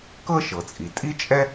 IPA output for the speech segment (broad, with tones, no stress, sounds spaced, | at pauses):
k ɤ˥ ʃ ɤ˩ t͡sʼ i˩ tʼ i˥ t͡ʃʼ ɛ˥